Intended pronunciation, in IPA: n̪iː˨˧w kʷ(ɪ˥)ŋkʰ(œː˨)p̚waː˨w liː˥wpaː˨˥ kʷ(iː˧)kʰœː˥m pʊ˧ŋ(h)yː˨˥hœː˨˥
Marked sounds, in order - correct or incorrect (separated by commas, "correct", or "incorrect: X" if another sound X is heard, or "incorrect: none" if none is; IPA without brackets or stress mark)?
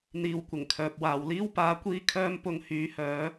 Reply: incorrect: ɪ˨˩, correct, incorrect: iː˥, correct